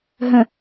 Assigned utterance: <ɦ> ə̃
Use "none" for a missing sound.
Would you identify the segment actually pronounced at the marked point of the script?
ɦ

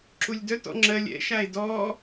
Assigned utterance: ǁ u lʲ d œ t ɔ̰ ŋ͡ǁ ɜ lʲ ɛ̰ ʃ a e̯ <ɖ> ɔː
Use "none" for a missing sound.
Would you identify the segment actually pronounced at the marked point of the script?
d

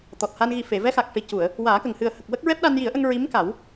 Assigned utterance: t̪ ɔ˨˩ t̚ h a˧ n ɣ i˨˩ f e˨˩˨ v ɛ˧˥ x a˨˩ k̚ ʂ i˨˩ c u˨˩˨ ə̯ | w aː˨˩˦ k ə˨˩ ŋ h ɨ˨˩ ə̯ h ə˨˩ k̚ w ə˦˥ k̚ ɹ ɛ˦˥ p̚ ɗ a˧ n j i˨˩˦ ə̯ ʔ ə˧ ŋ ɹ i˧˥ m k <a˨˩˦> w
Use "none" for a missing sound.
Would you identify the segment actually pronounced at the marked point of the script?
a˨˩˦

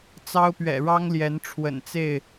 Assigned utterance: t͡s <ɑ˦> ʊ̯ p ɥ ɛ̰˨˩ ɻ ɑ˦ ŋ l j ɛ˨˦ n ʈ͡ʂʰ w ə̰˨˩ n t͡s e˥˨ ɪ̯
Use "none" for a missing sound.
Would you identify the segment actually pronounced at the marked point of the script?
ɑ˦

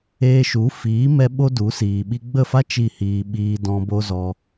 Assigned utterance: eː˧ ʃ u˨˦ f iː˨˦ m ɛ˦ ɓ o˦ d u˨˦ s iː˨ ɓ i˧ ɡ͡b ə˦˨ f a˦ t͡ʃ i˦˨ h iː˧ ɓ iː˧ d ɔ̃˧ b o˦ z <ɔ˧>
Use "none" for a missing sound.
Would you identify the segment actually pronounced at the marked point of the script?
ɔ˧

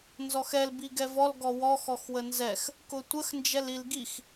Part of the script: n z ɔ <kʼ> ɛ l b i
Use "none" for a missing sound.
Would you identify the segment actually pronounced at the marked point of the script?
x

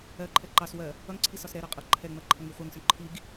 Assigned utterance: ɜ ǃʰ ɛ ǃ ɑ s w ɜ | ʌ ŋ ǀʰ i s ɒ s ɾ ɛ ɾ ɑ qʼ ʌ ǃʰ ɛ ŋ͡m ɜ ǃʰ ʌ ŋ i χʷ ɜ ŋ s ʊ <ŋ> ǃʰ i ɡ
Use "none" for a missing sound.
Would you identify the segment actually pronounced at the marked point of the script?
ɳ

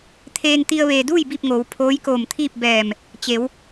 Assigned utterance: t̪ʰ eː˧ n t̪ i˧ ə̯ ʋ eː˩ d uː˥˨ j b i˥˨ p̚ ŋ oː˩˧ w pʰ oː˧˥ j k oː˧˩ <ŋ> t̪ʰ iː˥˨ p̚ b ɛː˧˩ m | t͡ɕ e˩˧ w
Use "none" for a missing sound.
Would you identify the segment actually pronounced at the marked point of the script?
m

